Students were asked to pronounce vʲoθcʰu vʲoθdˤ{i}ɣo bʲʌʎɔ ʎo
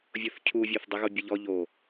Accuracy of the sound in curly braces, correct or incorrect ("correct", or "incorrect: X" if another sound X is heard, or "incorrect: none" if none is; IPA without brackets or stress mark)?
correct